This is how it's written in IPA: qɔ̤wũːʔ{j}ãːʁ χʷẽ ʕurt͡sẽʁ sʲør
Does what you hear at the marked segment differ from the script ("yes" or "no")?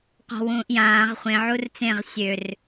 no